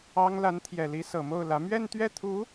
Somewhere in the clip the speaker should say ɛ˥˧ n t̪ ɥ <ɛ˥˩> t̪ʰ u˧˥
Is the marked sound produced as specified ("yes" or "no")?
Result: yes